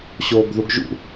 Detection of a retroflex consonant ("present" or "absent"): absent